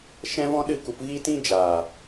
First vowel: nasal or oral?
nasal